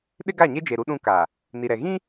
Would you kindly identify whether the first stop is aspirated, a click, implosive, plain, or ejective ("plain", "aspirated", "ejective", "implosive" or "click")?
implosive